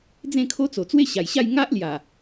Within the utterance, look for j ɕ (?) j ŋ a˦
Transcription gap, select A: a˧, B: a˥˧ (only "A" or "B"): B